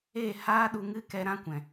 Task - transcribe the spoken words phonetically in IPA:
e˦˨ h aː˦ ɗ u˧ ŋ ɨ˦ k ɛ˧ ɾ ã˦ kʷ ɛ̃˨

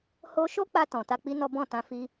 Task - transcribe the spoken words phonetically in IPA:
h o˧ ʃ o˦ k͡p a˧ t ɔ̃˨ t a˧ k͡p i˦ n ɔ˦ b ɔ̃˦˨ t ã˧ f i˦

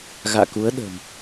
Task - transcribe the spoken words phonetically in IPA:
ɣ a̰ː˧˨ k u˨˦ ə̯ ɗ ə̤ː˨˩ m

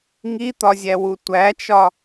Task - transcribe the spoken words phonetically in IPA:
ŋ i t̪ ɒ zʲ æ w u tʷ æ t͡ʃ ɒ

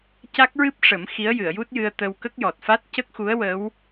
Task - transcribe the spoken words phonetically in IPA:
c a˦˥ k̚ ɹ ɨ˦˥ p̚ ʂ ə˨˩˦ m x i˧˥ ə̯ j ɨ˨˩˨ ə̯ j u˦˥ t̚ j ɨ˧ ə̯ t̪ ə˧ w k ə˦˥ k̚ j ɔ˨˩ t̚ f a˦˥ t̚ c ə˦˥ k̚ x u˧˥ ə̯ w ə˧˥ w

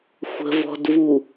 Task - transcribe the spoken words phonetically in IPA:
xʷ ə̤ v ɔ̤ d v u

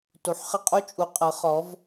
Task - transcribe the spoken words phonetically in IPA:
t u˩˧ ħ χ ə˦˨ qʼ u˦ t͡ʃʼ u˩˧ qʼ ɤ˩˧ χ ɔ˩˧ v

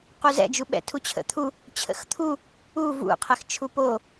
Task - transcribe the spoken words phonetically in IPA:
q u z ɛ̰ d͡ʒ u ɓ ɛ̰ tʰ u t͡ɕʰ ə̰ t̪ʰ u | t͡ɕʰ ə̰ x t̪ʰ u | u v ṵ qʰ ɛ x t͡ʃʰ u p o

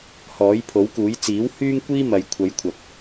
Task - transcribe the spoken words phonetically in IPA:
h ɔː˨˥ j pʰ o˨˥ w k uː˨˥ j t͡s iː˨˥ w h yː˥ ŋ kʷ iː˥ m ɐ˨ j kʷʰ ɐ˨˧ j kʷʰ ɐ˨ p̚

